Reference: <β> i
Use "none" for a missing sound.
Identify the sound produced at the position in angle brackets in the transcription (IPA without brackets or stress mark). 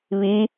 β